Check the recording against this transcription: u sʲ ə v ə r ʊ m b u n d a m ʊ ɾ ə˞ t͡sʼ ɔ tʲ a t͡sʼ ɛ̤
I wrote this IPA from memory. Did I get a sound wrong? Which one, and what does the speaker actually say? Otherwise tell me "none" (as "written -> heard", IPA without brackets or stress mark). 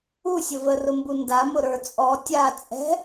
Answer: none